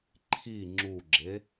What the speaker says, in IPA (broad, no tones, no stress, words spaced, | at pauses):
ǃʰi ŋ͡ǁuɡ͡ǁe